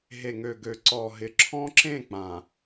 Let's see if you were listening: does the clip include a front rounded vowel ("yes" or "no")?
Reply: yes